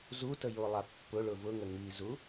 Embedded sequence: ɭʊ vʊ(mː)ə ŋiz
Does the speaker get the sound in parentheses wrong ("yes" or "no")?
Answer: yes